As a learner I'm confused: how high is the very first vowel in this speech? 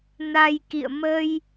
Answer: low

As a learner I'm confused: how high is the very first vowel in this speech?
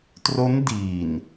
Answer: mid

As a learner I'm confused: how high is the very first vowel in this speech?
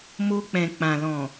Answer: mid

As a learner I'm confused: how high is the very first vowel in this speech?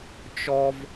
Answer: mid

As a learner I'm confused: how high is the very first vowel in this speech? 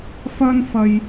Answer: low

